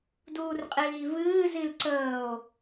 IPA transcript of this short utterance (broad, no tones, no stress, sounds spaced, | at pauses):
d uː r qʼ iː v ɨː z i l ǀ əː o̯